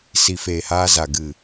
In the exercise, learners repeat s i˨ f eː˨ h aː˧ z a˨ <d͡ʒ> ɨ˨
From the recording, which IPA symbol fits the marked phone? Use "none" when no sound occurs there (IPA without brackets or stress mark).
ɡ